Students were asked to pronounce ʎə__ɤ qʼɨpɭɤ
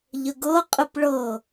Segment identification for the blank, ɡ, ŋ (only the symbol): ɡ